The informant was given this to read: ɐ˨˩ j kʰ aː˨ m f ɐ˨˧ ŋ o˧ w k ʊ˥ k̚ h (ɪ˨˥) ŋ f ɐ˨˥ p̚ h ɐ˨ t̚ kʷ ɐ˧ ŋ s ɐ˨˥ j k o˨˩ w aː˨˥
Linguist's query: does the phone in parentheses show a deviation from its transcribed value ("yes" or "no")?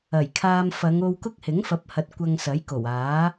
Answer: no